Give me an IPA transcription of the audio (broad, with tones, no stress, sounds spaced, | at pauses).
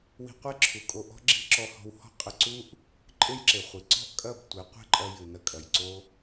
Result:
w i̤˧ qʷ e˦ ǁʰ u˨ kʼ o˧ ʔ ɔ̤˦ ɡ͡ǁ i̤˦ ǁ ɔ˧ h ɔ̤˧ w h ɔ̤˦ qʼ ɘ˧ ǀ u˦ ʔ | ǃʼ e˦ j ǁ e˨ χʷ i˨ ǀ ɔ̤˦˨ ʔ kʼ ɐ˦˨ b tʷ e˨˦ qʷ e̤˦ ǃʼ ɐ˧ j ɨ˨ n ɐ˧ kʼ ɐ˨ j ǀ o˦